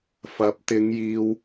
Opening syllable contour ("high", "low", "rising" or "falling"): rising